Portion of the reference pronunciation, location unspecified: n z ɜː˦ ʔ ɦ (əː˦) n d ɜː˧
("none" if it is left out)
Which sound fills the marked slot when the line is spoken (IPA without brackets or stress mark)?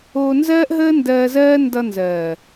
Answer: əː˦